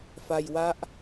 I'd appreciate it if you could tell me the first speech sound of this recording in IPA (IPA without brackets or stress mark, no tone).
f